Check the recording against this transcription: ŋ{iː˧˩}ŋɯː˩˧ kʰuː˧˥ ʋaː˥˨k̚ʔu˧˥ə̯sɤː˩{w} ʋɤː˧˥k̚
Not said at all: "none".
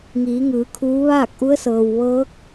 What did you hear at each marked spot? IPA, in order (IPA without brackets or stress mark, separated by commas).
iː˩˧, w